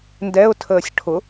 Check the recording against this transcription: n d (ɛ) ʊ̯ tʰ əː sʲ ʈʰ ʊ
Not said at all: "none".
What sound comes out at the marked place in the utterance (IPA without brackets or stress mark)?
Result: ɛ